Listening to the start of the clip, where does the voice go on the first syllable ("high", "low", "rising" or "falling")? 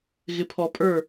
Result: low